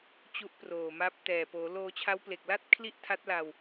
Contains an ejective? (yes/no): no